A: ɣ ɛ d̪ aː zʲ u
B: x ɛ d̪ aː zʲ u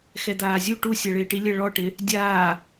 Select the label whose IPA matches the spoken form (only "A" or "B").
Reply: B